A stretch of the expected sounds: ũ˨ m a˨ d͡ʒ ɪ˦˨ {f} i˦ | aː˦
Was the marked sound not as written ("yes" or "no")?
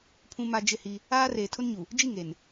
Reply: yes